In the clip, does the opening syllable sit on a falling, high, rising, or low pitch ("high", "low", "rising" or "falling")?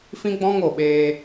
high